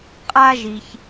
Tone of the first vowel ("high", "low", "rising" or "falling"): high